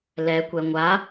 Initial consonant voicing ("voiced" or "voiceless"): voiced